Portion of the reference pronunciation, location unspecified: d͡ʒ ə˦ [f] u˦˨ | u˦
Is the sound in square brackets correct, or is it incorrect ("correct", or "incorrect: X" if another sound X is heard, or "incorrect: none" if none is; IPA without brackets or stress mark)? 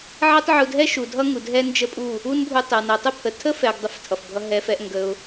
incorrect: pʼ